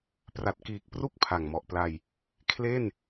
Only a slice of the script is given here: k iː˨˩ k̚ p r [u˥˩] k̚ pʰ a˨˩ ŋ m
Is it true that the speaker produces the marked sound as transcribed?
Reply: yes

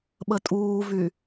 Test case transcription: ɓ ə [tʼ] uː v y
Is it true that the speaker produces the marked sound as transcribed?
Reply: yes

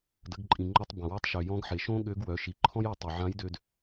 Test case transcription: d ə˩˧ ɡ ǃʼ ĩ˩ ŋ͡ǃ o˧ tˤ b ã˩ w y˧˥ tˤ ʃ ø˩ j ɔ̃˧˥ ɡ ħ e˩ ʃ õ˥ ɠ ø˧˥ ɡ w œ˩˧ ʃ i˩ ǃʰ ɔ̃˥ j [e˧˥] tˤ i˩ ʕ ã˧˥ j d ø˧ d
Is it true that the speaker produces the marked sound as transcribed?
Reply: no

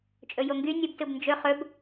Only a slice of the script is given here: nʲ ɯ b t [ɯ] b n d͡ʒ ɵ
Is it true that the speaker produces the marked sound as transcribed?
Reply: yes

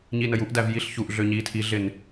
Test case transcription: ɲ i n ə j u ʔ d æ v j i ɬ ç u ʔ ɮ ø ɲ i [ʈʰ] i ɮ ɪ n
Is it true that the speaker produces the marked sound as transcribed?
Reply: no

